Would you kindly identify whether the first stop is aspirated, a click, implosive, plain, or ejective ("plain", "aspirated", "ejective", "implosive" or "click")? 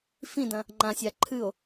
plain